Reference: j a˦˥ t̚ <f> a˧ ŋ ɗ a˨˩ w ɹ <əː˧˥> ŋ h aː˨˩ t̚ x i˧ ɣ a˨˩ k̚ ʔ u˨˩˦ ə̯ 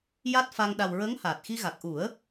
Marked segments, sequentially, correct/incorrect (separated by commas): correct, correct